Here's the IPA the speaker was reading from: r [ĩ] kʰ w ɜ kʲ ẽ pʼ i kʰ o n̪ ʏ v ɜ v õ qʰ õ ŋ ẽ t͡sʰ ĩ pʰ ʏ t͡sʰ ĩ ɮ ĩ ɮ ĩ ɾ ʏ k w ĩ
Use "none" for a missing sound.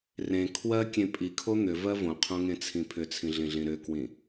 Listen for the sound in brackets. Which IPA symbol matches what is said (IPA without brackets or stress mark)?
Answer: ẽ